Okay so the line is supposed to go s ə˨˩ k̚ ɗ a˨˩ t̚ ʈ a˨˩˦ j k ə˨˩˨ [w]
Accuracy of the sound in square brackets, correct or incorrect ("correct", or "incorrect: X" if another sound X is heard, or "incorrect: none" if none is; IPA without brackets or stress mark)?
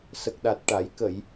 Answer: incorrect: j